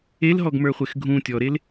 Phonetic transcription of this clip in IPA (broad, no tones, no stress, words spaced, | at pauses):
elɦɔɡmə˞χʷex ɡʱũ tʲɔɾel